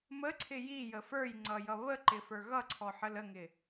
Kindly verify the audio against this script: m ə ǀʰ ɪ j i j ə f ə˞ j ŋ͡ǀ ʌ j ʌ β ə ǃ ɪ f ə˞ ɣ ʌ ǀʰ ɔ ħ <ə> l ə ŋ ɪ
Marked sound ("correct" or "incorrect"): correct